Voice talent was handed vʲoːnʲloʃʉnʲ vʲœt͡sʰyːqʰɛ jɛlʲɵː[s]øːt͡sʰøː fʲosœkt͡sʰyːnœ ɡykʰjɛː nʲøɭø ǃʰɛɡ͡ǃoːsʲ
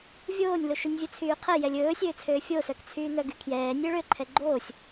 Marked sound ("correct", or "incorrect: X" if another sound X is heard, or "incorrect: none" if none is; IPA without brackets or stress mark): incorrect: sʲ